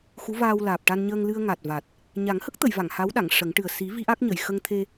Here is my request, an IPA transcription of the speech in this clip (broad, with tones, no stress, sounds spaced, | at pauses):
x u˧˥ v aː˧ w l aː˨˩ p̚ ʈ a˧ n ɲ əː˧ ŋ l ɨ˧ ə̯ ŋ a˨˩ t̚ v a˨˩ t̚ | ɲ a˨˩˦ ŋ h ə˦˥ k̚ t̪ ə˨˩˨ j v a˨˩˨ ŋ h a˧˥ w ɗ a˨˩˨ ŋ ʂ ə˨˩˦ ŋ ʈ ɨ˨˩ ə̯ s i˨˩˦ v i˧˥ ʔ a˦˥ k̚ ɲ ə˨˩˨ j x ə˧ ŋ t̪ʰ e˧